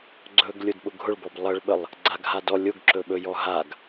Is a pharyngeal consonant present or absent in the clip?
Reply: absent